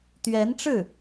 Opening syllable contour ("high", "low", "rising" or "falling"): rising